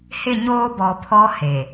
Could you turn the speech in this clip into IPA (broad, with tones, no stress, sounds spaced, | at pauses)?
h ɪ˦˨ ɲ oː˦ b ɔ˨ pʰ ɔ˦ h e˨